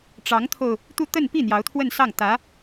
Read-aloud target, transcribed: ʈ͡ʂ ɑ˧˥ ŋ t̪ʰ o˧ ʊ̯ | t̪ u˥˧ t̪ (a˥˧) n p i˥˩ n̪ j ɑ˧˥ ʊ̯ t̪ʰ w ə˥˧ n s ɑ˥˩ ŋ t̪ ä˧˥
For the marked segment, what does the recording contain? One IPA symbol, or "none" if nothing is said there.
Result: ə˥˧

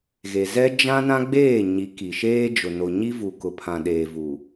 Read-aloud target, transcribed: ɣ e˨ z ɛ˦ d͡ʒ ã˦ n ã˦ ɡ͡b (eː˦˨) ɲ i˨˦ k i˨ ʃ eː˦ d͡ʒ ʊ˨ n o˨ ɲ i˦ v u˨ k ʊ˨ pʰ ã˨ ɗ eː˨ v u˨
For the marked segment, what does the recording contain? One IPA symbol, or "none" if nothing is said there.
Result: eː˦˨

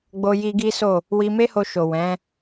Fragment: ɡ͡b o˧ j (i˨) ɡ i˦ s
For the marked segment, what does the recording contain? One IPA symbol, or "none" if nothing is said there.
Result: i˧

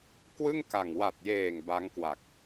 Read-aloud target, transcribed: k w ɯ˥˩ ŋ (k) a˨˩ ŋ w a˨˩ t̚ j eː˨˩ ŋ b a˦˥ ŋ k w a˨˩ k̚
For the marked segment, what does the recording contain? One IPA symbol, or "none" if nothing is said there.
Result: k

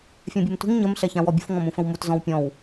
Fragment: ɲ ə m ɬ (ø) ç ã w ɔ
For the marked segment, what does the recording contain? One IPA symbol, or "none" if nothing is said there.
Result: ɛ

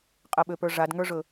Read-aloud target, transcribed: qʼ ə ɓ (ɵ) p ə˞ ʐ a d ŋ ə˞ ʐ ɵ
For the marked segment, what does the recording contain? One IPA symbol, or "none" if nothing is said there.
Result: ø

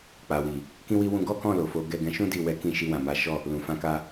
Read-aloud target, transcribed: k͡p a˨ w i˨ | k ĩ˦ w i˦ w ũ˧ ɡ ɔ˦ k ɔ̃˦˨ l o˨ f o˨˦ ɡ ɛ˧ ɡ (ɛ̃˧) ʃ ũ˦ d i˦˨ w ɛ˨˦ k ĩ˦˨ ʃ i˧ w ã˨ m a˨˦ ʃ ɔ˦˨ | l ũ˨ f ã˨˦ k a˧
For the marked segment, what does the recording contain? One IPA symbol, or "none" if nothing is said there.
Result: ɛ̃˧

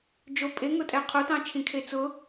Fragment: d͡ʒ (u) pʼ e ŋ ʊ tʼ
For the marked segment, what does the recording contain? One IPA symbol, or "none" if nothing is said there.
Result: o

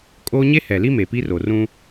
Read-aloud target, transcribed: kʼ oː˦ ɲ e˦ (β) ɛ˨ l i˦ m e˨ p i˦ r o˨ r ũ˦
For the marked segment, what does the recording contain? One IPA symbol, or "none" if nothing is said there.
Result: h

